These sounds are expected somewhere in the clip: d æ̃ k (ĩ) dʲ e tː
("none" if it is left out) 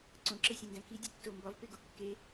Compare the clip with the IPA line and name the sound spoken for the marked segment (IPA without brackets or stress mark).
i